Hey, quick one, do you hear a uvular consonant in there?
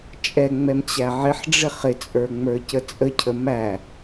yes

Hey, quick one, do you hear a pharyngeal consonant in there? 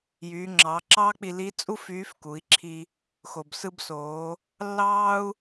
no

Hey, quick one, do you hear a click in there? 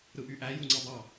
yes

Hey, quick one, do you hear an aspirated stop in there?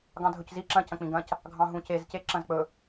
no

